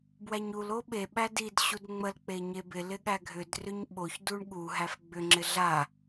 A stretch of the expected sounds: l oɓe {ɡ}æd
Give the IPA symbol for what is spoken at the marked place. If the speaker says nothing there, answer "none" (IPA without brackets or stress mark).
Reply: ɓ